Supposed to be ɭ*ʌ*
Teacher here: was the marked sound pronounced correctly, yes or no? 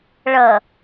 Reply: yes